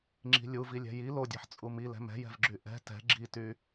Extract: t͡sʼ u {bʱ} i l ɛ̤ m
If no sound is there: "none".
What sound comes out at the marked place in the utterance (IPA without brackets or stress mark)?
m